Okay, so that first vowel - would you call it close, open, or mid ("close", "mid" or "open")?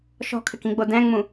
mid